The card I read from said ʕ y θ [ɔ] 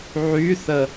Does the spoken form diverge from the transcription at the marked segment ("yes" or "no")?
yes